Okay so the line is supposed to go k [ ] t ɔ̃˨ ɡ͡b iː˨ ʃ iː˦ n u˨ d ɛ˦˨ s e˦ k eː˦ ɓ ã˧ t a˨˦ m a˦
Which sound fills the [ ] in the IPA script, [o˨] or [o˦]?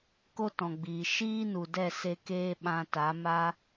o˦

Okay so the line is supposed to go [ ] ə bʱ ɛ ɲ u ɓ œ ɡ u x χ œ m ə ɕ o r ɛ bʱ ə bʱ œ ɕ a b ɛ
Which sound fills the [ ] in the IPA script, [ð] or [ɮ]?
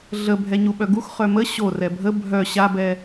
ɮ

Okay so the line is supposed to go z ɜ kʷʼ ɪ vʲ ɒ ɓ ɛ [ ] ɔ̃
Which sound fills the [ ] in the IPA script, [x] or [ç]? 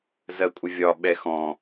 x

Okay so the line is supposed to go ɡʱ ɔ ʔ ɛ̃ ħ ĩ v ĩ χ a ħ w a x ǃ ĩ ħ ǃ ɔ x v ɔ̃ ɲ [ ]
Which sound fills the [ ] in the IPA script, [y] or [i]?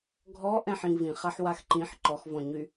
y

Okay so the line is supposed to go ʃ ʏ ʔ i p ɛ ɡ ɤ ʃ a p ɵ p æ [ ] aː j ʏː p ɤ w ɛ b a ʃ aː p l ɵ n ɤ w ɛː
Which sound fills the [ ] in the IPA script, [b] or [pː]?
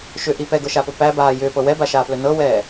b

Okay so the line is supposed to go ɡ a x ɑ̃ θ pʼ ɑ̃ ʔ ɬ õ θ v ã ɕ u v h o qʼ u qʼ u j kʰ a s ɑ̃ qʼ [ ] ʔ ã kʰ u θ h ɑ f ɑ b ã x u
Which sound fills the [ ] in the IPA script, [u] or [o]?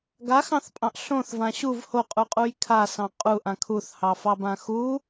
u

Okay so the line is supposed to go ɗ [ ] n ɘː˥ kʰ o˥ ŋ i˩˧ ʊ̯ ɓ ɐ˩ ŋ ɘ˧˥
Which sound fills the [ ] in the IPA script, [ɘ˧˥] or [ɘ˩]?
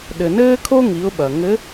ɘ˩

